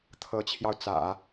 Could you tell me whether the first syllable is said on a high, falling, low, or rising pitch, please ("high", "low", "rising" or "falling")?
rising